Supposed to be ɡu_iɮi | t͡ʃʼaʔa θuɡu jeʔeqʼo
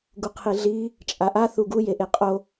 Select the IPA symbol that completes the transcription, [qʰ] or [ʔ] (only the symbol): qʰ